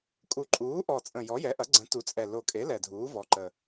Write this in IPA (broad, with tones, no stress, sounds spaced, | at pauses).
kʼ u˨˩ ǃʼ uː˩˥ ʔ ɔ˨˩ t͡sʼ ə̃˨˩ j ɔ˩˥ j ɛ˩˥ ʔ ɐ˩˥ ɡ͡ǀ ə̃˩˥ t u˩˥ t͡sʼ ɛ˨˩ l o˨˩ kʼ e˩˥ l ɛ˨˩ dʱ uː˩˥ v ɔ˩˥ ǃ ə˨˩